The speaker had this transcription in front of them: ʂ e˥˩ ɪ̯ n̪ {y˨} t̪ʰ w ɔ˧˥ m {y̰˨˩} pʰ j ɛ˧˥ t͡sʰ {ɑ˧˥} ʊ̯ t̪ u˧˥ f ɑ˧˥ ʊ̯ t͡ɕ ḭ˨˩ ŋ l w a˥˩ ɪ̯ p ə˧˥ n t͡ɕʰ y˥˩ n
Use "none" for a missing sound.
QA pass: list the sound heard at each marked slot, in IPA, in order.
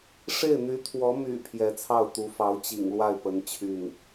y˧˥, y̰˨˩, ɑ˥˩

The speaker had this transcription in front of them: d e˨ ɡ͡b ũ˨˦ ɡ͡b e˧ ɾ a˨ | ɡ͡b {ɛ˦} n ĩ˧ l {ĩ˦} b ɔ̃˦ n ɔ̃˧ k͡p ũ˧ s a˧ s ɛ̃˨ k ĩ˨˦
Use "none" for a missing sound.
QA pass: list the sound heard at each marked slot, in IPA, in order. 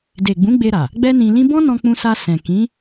ɛ˦, ĩ˦

